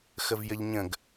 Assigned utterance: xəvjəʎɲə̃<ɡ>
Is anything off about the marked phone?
no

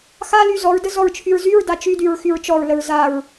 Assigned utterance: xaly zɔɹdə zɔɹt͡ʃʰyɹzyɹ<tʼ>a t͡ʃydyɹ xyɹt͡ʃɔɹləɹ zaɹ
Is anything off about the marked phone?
yes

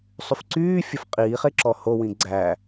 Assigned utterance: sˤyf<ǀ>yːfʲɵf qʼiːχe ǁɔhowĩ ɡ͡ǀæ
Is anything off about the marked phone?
no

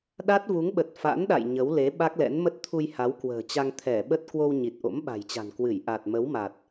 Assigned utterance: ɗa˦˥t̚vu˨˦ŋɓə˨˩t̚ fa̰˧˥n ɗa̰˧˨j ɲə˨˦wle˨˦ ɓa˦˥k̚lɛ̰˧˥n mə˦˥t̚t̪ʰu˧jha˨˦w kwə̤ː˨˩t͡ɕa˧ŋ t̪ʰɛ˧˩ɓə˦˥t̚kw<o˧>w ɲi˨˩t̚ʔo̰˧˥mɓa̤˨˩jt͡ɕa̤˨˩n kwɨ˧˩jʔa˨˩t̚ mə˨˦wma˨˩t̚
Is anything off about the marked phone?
no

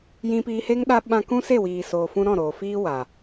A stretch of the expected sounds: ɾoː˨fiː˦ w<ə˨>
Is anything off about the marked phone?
yes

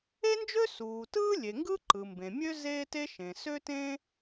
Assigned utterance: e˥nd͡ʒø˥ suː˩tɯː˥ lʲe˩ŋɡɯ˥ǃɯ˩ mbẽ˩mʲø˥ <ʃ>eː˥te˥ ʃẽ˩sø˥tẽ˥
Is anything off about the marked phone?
yes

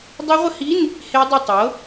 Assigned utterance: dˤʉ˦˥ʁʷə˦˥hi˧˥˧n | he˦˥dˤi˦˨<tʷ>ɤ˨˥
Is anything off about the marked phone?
yes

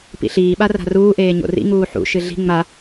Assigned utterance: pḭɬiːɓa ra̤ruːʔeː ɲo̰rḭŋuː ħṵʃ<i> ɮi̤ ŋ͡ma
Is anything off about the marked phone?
yes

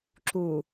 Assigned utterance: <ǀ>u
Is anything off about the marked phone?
yes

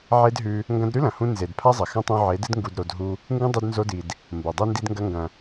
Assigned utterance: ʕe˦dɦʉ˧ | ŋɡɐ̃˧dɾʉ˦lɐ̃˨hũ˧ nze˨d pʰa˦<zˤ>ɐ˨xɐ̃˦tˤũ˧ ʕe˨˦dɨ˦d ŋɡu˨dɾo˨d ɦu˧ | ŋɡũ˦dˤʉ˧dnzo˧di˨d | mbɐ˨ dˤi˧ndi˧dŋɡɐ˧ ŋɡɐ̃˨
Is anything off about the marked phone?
no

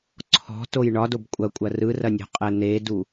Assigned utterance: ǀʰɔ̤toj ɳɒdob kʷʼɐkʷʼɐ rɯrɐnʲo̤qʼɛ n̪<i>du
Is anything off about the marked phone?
yes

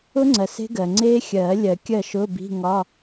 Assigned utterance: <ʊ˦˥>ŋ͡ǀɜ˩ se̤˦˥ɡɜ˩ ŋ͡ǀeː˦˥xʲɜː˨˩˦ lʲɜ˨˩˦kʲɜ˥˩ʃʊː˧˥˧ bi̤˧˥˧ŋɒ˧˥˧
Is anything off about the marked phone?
no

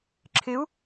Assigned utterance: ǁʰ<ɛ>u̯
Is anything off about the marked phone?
yes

